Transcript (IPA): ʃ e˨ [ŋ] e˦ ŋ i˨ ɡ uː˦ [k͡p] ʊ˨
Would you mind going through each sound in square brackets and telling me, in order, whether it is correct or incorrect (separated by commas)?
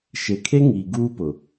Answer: incorrect, incorrect